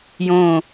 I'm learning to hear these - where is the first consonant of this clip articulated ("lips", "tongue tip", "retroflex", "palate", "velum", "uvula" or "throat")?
palate